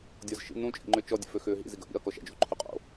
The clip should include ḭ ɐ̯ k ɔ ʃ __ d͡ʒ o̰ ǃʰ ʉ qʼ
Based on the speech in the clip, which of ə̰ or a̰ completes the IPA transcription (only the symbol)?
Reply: a̰